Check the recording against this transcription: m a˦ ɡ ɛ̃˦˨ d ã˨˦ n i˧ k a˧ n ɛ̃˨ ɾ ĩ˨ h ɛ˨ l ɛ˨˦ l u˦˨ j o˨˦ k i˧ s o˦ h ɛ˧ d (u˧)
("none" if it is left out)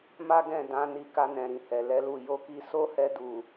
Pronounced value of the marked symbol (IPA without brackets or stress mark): u˨